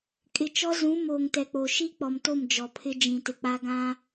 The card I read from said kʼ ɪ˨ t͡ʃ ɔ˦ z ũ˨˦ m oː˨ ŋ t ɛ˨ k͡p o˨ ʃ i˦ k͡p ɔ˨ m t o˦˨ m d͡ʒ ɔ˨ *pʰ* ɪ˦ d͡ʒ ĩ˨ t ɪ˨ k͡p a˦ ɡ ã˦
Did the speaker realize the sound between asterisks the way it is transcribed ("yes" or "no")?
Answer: yes